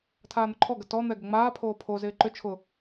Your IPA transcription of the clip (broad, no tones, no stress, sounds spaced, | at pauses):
tʰ aː n̪ ʊ ǃʰ ɔ ɡ ə t ɔ n̪ ɛ ɡ ə ŋ͡m aː pʰ oː pʰ o z ɪː ǃ ʏ t͡ʃʰ ʊ